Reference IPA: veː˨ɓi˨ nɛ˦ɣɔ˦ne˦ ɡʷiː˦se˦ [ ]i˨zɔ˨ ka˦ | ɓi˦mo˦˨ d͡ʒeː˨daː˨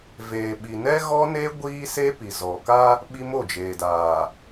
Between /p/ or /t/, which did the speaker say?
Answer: p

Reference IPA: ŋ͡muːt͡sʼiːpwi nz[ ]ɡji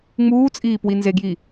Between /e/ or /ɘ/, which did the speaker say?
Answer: e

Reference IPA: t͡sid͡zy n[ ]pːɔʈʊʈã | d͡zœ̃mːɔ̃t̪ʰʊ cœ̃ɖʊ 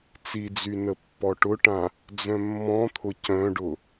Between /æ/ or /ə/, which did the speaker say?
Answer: ə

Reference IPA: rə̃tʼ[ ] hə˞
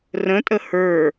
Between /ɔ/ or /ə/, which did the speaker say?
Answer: ə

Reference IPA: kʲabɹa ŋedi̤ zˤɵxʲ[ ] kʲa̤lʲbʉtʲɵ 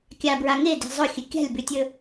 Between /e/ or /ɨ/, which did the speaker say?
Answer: ɨ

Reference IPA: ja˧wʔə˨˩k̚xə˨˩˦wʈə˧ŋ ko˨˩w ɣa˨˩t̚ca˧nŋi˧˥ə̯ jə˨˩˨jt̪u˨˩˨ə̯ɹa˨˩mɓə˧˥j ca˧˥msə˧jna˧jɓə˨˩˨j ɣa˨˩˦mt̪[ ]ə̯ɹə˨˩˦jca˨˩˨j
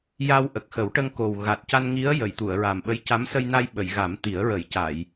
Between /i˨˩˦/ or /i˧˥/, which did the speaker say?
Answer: i˨˩˦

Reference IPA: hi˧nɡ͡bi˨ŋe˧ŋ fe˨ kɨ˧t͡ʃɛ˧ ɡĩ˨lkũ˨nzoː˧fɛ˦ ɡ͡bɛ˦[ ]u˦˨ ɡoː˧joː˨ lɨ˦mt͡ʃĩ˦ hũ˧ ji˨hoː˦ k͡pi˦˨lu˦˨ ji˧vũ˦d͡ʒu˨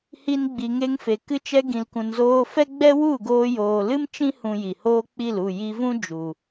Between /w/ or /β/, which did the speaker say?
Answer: w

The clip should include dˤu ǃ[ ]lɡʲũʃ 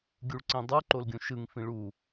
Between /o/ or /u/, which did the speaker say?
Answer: o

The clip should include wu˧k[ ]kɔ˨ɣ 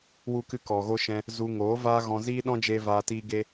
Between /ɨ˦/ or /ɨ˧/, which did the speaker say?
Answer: ɨ˧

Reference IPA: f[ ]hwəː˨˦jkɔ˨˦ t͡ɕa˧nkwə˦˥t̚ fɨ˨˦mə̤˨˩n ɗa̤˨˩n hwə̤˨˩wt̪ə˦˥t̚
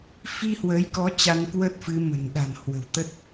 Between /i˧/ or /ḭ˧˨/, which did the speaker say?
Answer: i˧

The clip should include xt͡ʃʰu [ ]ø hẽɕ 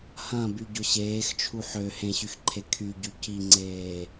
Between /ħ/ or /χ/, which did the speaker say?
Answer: ħ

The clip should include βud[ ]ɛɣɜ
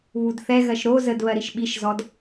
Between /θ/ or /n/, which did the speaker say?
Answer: θ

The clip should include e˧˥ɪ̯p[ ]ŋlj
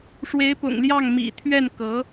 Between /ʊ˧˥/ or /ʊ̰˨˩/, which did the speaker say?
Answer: ʊ̰˨˩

